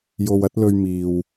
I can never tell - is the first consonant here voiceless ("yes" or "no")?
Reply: no